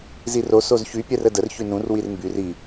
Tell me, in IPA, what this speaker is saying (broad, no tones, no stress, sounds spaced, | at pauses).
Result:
z i r o s o z ç y pʲ ɛ r ə d ə r ç y n ũ r w i r m b y r i